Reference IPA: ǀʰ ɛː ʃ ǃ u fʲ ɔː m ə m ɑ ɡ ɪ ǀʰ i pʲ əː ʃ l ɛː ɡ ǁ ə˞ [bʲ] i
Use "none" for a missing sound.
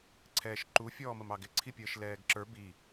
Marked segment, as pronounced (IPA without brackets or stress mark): b